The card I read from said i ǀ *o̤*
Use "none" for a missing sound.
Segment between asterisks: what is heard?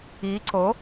o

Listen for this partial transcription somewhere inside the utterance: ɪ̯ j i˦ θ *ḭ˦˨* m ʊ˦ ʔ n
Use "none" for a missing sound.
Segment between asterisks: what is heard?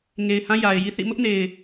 ḭ˦˨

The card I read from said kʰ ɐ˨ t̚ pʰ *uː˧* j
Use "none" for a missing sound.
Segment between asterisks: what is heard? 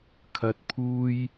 uː˧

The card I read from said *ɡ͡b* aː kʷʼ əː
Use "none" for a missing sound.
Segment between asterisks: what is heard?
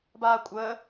b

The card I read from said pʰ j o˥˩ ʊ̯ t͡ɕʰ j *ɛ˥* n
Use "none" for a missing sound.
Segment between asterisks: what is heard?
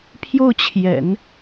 ɛ̰˨˩˦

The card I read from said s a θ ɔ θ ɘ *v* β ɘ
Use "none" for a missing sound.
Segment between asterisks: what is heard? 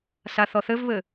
v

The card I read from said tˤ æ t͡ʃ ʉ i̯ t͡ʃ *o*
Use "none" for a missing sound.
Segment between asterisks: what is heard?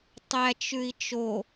o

